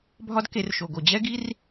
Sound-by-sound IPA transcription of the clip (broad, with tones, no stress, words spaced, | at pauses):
bʱɒ˦dke˧rʃo˨ɡo˨ d͡ʑɛ˦ɡi˦r